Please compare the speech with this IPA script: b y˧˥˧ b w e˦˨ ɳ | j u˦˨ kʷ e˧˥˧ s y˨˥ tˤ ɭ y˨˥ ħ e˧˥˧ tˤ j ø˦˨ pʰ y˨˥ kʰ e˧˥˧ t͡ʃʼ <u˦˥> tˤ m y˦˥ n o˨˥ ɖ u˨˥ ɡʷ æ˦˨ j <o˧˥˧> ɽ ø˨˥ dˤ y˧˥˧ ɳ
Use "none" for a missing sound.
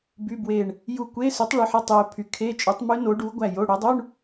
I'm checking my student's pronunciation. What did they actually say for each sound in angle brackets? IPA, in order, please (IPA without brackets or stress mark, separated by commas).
u˨˥, o˧˥˧